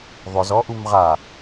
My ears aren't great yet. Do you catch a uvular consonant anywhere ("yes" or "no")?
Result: yes